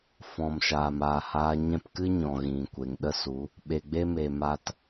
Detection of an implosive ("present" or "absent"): present